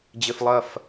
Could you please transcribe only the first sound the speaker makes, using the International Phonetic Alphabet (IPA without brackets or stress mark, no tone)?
d͡ʑ